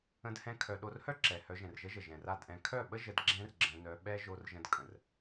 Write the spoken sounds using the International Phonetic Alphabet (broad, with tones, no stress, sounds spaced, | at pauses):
ə̃˧ d h ɛ̃˦ kʰ œ˧ ɗ o˧ r h œ˦ ǁ ɛ˨ h œ˧ ʒ ɛ̃˨ r ʒ ə˦ ʒ ə˨ ʒ ɛ̃˨ r a˦˨ d ʔ ɛ̃˧ kʰ œ˦˨ ɓ ə˦ ʒ ə˧ d ɡ͡ǁ ɛ̃˦ r ɡ͡ǁ ə̃˧ n œ˧ ɓ ɛ˦ ʒ o˧ r ʒ ə̃˧ d kʼ ə̃˨ r